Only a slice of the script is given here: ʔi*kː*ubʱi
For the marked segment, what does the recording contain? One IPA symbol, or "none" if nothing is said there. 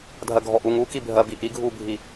ɡʱ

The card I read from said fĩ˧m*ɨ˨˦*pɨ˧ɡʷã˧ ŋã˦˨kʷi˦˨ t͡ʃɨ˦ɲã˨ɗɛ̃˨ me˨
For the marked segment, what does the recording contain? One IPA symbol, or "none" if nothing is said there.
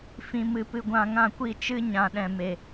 ɨ˧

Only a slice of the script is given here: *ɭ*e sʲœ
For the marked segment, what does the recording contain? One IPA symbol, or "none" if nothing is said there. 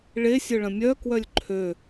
ɭ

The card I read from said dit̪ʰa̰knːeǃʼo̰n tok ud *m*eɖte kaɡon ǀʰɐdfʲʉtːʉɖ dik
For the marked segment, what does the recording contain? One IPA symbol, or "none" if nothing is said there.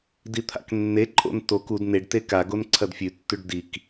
n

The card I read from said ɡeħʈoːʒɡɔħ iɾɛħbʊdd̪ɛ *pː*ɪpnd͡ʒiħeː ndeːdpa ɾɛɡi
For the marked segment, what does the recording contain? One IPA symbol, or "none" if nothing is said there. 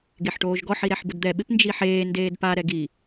ɓ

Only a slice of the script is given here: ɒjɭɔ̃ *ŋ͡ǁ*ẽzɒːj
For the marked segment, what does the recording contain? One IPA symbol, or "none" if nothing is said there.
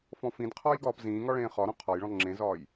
ŋ͡ǁ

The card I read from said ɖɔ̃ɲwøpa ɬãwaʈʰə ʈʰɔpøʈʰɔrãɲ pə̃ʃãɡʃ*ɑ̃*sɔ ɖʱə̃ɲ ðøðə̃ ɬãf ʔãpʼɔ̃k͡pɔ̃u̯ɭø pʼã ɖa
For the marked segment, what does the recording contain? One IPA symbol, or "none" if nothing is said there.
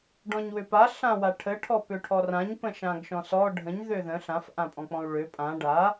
ɔ̃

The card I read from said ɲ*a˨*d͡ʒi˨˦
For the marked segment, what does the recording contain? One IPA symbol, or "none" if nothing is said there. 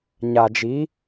a˨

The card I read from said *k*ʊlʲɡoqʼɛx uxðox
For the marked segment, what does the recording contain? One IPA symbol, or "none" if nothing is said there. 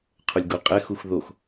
qʰ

